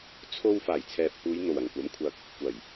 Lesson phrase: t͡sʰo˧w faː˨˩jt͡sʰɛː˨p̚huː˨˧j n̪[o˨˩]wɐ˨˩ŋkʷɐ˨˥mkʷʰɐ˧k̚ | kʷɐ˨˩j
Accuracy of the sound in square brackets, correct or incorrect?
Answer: correct